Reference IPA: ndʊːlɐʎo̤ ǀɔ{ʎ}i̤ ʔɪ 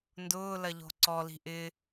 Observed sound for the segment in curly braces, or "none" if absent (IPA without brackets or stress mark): l